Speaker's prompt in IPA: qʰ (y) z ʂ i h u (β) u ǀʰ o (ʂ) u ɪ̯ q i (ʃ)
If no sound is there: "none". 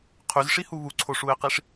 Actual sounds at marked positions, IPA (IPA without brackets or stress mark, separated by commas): y, β, ʂ, ʂ